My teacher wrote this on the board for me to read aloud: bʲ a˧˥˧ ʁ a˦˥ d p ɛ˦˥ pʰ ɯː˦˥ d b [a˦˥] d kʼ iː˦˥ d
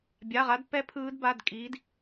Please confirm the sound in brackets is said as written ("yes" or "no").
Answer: no